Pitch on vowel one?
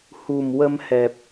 low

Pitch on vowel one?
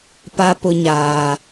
high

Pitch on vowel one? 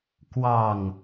low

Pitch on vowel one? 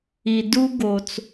low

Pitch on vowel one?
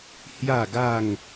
falling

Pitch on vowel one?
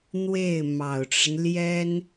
falling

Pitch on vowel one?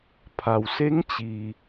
low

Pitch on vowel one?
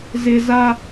high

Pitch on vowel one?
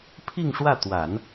falling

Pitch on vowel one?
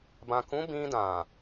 low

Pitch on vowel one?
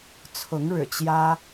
rising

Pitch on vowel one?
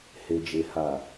low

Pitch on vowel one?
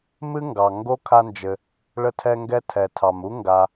high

